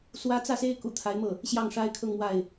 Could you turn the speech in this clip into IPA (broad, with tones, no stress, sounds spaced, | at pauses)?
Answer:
s w ä˥ t͡s ä˥˩ s e˥ ɪ̯ k ṵ˨˩ t̪ʰ a˧˥ ɪ̯ m ɤ˥˩ | ɕ j ɑ˥˩ ŋ ʂ a˥ ɪ̯ kʰ ɤ˥˧ ŋ m w a˥˩ ɪ̯